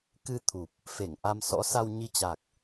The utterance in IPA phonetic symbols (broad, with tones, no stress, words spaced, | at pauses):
kɨ˧ t̪ʰu˨˩p̚ | fe˧˩ŋʔa˧msɔ̰˧˥ sa˧wɲi˧t͡ɕa˨˩k̚